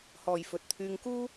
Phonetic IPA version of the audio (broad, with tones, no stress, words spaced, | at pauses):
hɔː˨jfɵ˨t̚t̪ʰyː˧ŋkuː˥